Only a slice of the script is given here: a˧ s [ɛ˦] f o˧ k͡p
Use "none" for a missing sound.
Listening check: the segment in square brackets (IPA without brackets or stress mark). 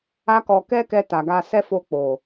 ɛ˦